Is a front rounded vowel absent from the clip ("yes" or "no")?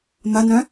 no